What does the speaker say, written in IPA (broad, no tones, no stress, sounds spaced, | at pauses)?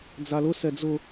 d͡z a l ʊ s ɛ d͡z ʊ